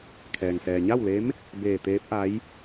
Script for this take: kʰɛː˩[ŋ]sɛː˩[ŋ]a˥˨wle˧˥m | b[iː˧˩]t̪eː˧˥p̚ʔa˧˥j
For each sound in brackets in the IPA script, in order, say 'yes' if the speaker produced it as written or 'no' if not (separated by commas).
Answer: yes, no, no